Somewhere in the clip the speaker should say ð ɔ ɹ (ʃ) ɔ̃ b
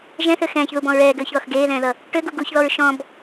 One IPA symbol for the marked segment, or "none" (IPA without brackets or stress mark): ʃ